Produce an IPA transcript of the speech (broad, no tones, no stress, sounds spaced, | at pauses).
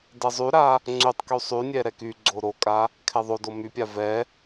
d ɛ zˤ y ɾ a | ŋ͡ǀ y tˤ k y sˤ y nʲ ɛ ɾ ɛ k y ɡ͡ǀ o ɾ o kʼ a | kʰ ɛ ðˤ o d o m y pʲ a v ɛ